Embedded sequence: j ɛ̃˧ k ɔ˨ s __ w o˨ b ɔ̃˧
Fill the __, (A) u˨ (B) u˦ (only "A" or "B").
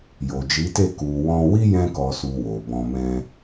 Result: A